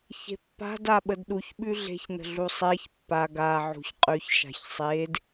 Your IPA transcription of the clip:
ç e̤ pː a̤ d a ɓ ə d ɗ u ç ɓ ʉ ɮ e̤ ç n ə̤ ɮ u sˤ e ç pː a ɡ a ʕ ṳ ç qʼ ʉ ç ʃ a̤ ç sˤ e d

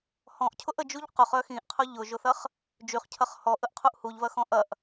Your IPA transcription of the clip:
h ɔ̃ ʔ cʰ ʊ ʔ ə d͡ʒ u ʎ q ʊ χ œ x ĩ ʔ qʰ ʊ ʎ ʊ ʒ ʊ θ ɐ χ | d͡ʒ y χ cʰ ɐ χ h ɔ ʔ ə ʔ qʰ u ʔ h u ʎ v ɐ x ɔ̃ ʔ ɐ ʔ

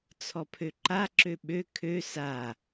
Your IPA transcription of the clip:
t͡sʰ ɔ pʰ ø ǃ a ǁ ø ɓ ø kʰ ø s a

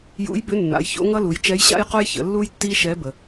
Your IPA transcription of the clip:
j ṵ˧˥ j b ʏ˧˥ nː a̰˩˧ j ç o̰˧˥ ŋ ʌ˥ l u˩˧ j t͡ʃ ɛ˧˥ j ɕ a̰˥ j q o˥ j ç ə̰˩˧ lː u˥ j tː i˥ ʃ ɛ˧˥ b ə˩

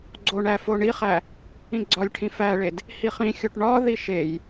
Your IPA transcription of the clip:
ɡ͡ǀ o ɳ æ f o ɳ i χ æ | ĩ ɡ͡ǀ ɒ lʲ ʈʰ ĩ f æ ɭ e d | h i χ ĩ xʲ o ʈ ɳ ɒ ð i ʃ e j

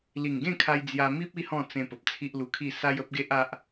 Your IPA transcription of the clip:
l i˨˩ ŋ ɡ ẽ˥˧ kʰ a˧ j d͡z j a˧ m i˦ p̚ i˦ h ɔ̃˥˧ t͡s ẽ˧ p ə˨ p̚ t͡sʰ i˦ ʔ l u˧ kʰ i˥˧ s a˦ j ə˦ p̚ ɡ e˦ ʔ a˦ ʔ

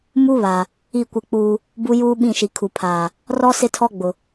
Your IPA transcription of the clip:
m u˦ β a˨ | i˦˨ kʷ ɪ˦˨ k͡p uː˦ | b u˦ j uː˦ ɓ ĩ˦˨ ʃ i˨ kʰ u˨ pʰ aː˨ | r ɔ˦ s ɪ˦ tʰ ɔ˦ ɡ͡b ʊ˨

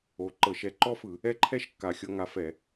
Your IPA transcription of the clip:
o˨˥ ǃ ɤ˧˩˧ ʃ ɛ˨˥ ǃ ɔ˥ f ɯ˧˩˧ | ɛ˥ ǃʰ ɛ˥ ʃ kː a˨˩ xʲ ɤ˥ ŋ a˨˥ f ɛ˧˩˧

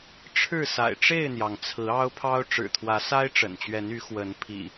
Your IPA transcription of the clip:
ʈ͡ʂʰ ɻ̩˥˨ s a̰˨˩ ɪ̯ ʈ͡ʂ e˥˨ ɪ̯ n̪ j ɑ˩ ŋ t͡sʰ ɹ̩˨˦ ɑ˦ ʊ̯ pʰ ɑ˦ ʊ̯ ʈ͡ʂ ɻ̩˨˩ t̪ʰ w ä˨˦ s a˦ ɪ̯ ʈ͡ʂ ə̰˨˩ n t͡ɕ ɥ ɛ˨˦ n y˨˦ x w ə˨˦ n pʰ ḭ˨˩

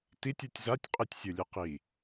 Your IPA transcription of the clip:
t i tʲ ɯ tʲ z a tʲ qʼ i tʲ sʲ ɯ lʲ ɯ q i

